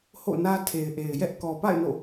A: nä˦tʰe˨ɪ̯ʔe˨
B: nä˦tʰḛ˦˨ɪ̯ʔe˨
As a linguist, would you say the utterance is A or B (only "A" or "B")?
A